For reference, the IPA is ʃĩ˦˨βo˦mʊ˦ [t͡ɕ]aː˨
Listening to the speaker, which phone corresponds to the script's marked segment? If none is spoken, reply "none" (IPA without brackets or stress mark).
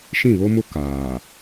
k